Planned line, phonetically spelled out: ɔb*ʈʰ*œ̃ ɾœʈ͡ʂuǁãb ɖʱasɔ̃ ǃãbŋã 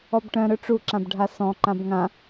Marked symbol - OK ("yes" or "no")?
no